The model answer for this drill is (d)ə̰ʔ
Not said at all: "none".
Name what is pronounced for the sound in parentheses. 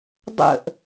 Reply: dˤ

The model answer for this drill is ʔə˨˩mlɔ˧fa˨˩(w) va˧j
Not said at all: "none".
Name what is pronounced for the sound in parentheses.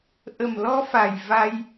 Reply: j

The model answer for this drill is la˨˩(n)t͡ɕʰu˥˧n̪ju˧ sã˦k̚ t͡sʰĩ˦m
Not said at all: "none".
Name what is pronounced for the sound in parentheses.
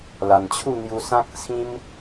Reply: n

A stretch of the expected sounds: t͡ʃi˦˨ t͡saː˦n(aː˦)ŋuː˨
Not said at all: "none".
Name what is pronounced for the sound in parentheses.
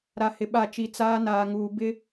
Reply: aː˨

